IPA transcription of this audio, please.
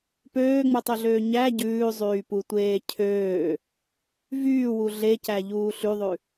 pøːŋ͡mutˤøɮøː ɲæ ɟʉːzˤyːputʷeː cʰøː | vyːwu ɮecæʎuː ɬyðˤʉ

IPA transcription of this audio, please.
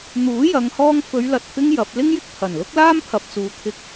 n̪uː˨˥jɐ˨˧ŋhɔː˧ŋ fɵ˨˧ɥlɐ˨t̚fɪ˧ŋ jɐ˨˥p̚ lɪ˥ŋjɪ˥k̚pʰɐ˨˩nlʊ˥k̚ laː˥mpʰɐ˨p̚t͡suː˨˧t̪ʰɪ˧k̚

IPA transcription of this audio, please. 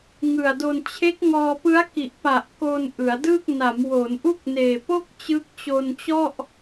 ŋɯ˨˩a̯do˧n t͡ɕʰe˦˥k̚ŋɔː˧ pɯ˦˥a̯ki˨˩ʔpa˨˩ʔ ko˧n ʔɯ˩˦a̯dɯ˥˩k̚ na˩˦mwo˩˦nʔu˥˩k̚neː˨˩ po˥˩k̚ t͡ɕɯ˦˥k̚t͡ɕo˧nt͡ɕɔ˥˩ʔ

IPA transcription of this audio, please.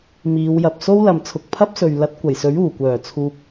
miː˨˧wjɐ˨p̚ so˥wlɐ˨mt͡sʰʊ˨k̚ pʰɐ˥p̚sɵ˨ɥ lɐ˨˥t̚kʷɐ˨˩jsɵ˨˥ɥ uː˨˩kʷœː˨˩ t͡sʰuː˧p̚

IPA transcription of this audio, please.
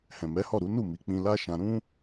hɛ̃˨mɛ˨˦hɔ˦˨ɾu˨˦ nu˦˨mi˨˦k͡pĩ˧la˦ ʃã˧ɾũ˦

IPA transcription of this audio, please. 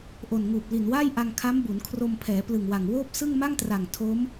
ʔo˨˩nŋuː˨˩p̚ li˨˩nwaː˥˩j ʔa˧ŋ kʰa˦˥mbu˩˦nkʰro˧mpʰɛː˩˦ plɯ˨˩ŋwa˨˩ŋwoː˥˩p̚sɯ˥˩ŋ ma˥˩ŋtra˨˩ŋ tʰo˦˥m

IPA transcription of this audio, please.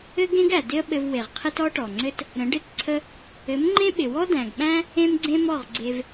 ɘ˦ɡẽ˦ɡæ˨ dɪ˦ə̯ɓɘ˧vwe˨ʁqʰɪ˦t ɔ˦ʈɔ˨ŋ͡ǀɘ˦t | ɾə̃˨˦ɖɪ˦˨tǀʰə˦ | ɘ˨˦mŋ͡ǃẽ˦ɓɪ˨ wɔ˦dæ̃˨ɡɓæ̃˦ | ẽ˦mɡ͡ǀẽ˦mɔ˦˨ʁ ɡ͡ǀe˧v

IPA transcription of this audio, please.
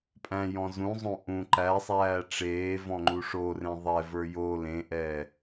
pʼæ̃jɔ̃ zũzˤõ ʔũ ǃæsˤæː ʈ͡ʂeːvɔ̃ŋ͡ǃu ʂorẽ ðˤɛvə˞ jo lẽʔɛː

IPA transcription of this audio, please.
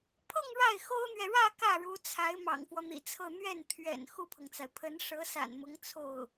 pʰɤ˥˧ŋ ɻa˥˩ɪ̯xo˥ʊ̯n̪ɥɛ˨ ɻä˥˧ kä˥˩ɻu˧˥t͡sʰa˧˥ɪ̯ mɑ̰˨˩ŋfwɔ˦n̪ḭ˨˩t͡sʰɤ˥˧ n̪ɥɛ˥˩nt̪ʰɥɛ̰˨˩n xu˥˩pʰɤ˩ŋt͡sa˩ɪ̯ pʰə˧˥n ʂɤ˧˥sa̰˨˩nmʊ˧˥ŋ t͡sʰo˥˩ʊ̯

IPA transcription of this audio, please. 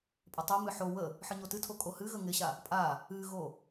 pʼətˤɨmɨ ħo wə | ħɨɲotɨtʰo kʼohɨɣə ŋɪɕa | pʼa | ɨɣo

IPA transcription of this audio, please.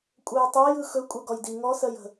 kʷʼœjtˤɜj ɯxɵ kʷʼɜɡɔjdi ŋɔsɜjə̤

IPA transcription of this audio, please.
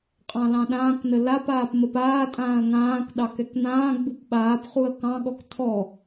qʼɑ̃lɑ̃ɗãːknə lapaːp məpaːtʼãːɐ̯ ŋãːk ɗɑkɛkn̪ãːɡ͡bup ɓaːpχuɐ̯ kɑ̃ɠɔk tʰɔ

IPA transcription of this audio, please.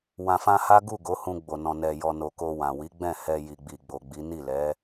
wã˨fã˧ha˦ ɡu˦˨ ɡo˨˦hũ˧ ɡ͡bo˨nɔ̃˨ nɛ˨ jɔ˨ no˨ ko˧wã˨ wi˨˦ɡ͡bɛ̃˦˨ hɛ˧ ji˨ɡ͡bi˨ɡ͡bo˨ɡ͡bi˨˦ ni˦˨lɛ˨˦

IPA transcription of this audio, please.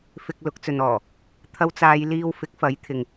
fɪ˧k̚lʊ˨˥k̚t͡sɵ˨nɔː˨˩ | t̪ʰɐ˧wt͡saː˨˧jliː˧w fɪ˨˥k̚fɐ˨˥j t̪ʰɪ˨ŋ

